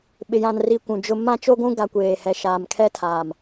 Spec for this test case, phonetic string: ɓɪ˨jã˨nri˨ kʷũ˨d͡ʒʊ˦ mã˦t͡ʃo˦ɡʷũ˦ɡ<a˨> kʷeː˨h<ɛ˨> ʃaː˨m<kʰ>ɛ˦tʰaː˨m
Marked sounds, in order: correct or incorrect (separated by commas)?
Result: correct, correct, correct